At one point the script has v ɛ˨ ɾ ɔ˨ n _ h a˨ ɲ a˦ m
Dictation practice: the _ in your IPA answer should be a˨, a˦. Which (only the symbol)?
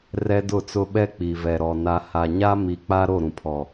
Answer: a˦